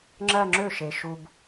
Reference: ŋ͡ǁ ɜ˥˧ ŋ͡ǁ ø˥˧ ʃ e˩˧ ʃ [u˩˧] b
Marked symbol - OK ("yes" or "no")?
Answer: no